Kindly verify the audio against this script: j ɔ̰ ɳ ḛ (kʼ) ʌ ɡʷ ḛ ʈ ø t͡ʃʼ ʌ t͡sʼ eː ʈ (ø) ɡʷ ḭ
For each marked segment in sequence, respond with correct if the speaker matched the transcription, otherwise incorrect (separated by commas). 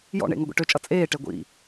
incorrect, incorrect